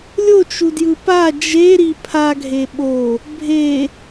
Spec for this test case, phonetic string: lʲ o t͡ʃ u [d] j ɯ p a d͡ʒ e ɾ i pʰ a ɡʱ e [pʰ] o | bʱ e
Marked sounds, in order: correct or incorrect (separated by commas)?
correct, incorrect